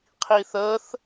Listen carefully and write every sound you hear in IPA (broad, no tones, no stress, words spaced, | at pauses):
qʰiθəθ